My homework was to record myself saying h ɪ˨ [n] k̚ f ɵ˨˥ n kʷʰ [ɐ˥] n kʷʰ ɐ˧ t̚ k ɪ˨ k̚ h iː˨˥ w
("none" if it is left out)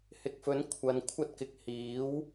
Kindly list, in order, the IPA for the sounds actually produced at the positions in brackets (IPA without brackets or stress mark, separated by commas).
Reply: none, ɐ˨˧